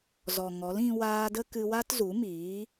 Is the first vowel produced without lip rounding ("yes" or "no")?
no